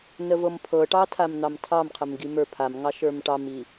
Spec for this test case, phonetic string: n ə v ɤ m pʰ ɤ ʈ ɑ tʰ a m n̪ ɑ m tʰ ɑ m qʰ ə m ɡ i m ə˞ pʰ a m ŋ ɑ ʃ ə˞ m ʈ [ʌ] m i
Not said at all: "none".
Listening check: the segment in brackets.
ɑ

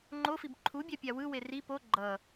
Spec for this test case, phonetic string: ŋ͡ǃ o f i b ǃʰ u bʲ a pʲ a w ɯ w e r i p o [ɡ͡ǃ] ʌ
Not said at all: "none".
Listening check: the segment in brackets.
ɡ͡ǃ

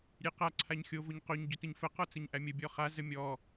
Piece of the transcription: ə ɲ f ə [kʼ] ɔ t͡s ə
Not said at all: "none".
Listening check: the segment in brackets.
q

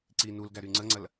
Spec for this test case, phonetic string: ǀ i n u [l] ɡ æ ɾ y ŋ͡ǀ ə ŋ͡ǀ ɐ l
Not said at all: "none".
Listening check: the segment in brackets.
l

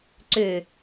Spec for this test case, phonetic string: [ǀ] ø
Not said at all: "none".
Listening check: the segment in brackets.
ǀ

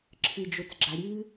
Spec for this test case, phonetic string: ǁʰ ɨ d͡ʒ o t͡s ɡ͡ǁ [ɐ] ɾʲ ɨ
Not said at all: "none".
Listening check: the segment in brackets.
a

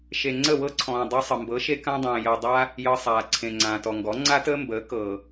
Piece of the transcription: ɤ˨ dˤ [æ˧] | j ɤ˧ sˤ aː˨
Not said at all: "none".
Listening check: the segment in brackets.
a˧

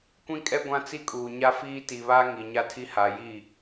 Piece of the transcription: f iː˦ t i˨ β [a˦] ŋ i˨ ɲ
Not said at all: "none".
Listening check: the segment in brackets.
a˦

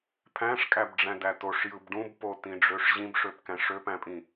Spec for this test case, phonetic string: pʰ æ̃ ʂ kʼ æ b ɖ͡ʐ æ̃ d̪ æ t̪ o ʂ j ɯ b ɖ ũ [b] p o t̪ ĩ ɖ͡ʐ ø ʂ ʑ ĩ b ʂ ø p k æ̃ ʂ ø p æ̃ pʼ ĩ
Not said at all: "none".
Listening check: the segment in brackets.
b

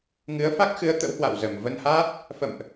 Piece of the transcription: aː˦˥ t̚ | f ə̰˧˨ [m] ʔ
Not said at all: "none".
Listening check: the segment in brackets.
m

